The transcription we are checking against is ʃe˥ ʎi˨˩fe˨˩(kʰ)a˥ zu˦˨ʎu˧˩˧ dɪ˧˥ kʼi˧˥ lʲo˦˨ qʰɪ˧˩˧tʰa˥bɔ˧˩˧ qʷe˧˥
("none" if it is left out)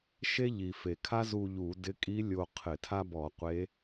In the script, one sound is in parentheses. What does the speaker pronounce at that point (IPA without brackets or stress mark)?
kʰ